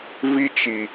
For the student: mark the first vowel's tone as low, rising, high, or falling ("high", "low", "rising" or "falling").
high